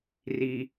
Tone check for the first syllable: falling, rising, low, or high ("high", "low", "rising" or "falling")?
low